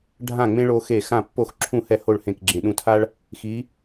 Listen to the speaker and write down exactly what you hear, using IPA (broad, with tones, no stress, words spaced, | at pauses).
ɖʱã˥˨ŋ͡mẽ˥ ɭo˥xe˥˨ xã˥˨pːo˥˨x ǁʰũ˥˨hɛ˥˨ho˥˨ɭ hẽ˥˨kɡ͡ǁẽ˧ ɗũ˧tʰa˥ɭ | xi˨˥